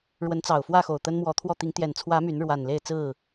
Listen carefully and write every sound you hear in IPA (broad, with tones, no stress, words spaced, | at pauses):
ɻwə˨˦nt͡sɑ˨˩ʊ̯ fwä˥˨xo˨˩ʊ̯ t̪ə˦nmwɔ˨˦t̪ʰwɔ˥˨ t̪i˨˦ŋt̪jɛ˨˩nt͡sʰwä˨˦ my˨˦n ɻwa˨˩n le˥˨ɪ̯t͡sɹ̩˥˨